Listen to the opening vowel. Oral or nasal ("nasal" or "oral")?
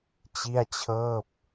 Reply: oral